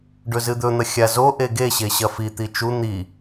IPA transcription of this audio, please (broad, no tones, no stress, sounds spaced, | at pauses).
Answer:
ɖ ɵ z ɨ d̪ ɵ n̪ ɐ xʲ a z o ʔ e ɡ e ɕ e ɕ ɐ f i t̪ i t͡ʃ u n̪ i